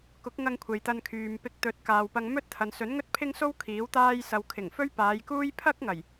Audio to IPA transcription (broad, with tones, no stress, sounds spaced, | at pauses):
k ʊ˨˥ k̚ ŋ ɐ˧ ŋ kʷʰ e˨ j t̪ ɐ˧ n kʰ yː˨ m p ɪ˧ k̚ t̪ ɵ˨˥ t̚ k aː˨ w p ɐ˧ ŋ m ɵ˥ t̚ t̪ʰ ɐ˨ n s ɵ˨˥ n ŋ ɵ˥ t̚ pʰ ɪ˥ ŋ s o˥ w kʰ iː˨˥ w t̪ aː˥ j s ɐ˧ w kʰ ɪ˨˩ ŋ f ɵ˥ ɥ p aː˨˧ j k uː˥ j pʰ ɐ˥ k̚ ŋ ɐ˨˩ j